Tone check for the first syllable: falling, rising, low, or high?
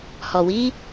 low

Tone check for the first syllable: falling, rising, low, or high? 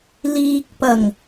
low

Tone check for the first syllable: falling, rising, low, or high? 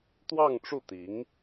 falling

